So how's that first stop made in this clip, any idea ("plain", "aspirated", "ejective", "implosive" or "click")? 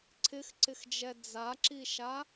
click